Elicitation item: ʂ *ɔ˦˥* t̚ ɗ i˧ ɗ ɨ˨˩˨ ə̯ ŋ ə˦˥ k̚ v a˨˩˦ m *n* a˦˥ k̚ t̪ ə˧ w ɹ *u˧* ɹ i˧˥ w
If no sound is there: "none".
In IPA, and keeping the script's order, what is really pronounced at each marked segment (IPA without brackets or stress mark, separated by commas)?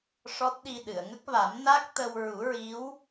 ɔ˦˥, n, u˨˩˦